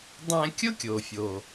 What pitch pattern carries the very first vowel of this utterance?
high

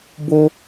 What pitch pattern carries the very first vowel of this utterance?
high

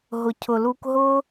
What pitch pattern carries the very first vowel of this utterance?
low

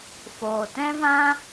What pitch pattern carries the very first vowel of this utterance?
low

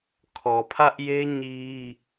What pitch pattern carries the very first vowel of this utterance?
low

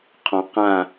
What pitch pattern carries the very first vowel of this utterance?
low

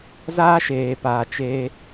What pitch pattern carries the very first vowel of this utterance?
high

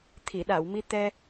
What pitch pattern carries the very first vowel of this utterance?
low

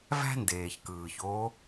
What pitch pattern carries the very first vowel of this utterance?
high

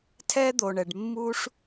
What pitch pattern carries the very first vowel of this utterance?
high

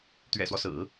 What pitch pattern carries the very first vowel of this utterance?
low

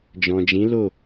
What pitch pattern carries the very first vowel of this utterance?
low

